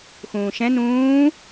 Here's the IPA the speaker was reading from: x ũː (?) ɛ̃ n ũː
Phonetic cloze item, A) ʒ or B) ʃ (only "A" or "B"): B